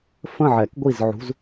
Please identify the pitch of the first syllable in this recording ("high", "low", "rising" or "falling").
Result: falling